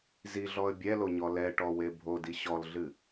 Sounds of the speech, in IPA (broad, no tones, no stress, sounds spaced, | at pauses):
z i ɮ ɔ ə̯ bʲ ɛ l o ɲ ɔ l ɛ ʈ ɔ w e bʱ o d i ɕ ɔ l ɮ ɨ